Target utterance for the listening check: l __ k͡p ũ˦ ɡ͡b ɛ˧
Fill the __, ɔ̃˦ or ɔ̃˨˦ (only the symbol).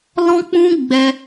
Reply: ɔ̃˦